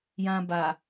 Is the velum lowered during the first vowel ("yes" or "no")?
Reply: yes